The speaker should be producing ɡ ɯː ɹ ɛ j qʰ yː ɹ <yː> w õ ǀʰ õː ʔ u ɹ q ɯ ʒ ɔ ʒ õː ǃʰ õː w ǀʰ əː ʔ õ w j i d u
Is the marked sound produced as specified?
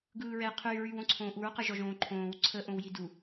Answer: yes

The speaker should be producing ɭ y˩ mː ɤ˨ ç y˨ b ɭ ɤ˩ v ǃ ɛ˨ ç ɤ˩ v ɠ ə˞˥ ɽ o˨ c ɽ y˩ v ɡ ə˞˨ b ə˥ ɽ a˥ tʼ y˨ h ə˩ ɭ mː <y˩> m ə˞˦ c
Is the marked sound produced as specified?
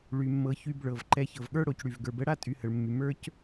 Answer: yes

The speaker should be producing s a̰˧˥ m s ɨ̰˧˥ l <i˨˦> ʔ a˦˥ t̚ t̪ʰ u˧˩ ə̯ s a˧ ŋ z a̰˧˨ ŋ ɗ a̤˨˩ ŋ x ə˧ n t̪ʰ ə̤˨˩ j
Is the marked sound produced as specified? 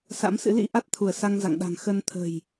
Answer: no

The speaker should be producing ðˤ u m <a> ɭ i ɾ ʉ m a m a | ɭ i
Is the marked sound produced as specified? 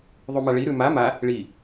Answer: yes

